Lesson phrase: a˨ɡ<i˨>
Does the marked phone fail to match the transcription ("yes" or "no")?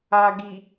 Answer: no